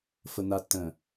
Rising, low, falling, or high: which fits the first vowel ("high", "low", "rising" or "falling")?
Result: low